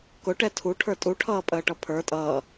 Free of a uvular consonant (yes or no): yes